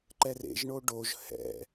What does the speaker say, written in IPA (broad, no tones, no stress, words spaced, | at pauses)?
ǃɛrḛʒɳo ɖoʒ hɛ̰